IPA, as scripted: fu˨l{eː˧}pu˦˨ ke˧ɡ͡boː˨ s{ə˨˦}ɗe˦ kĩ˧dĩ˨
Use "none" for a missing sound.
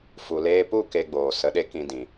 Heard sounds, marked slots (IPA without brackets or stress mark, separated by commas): eː˧, ə˨˦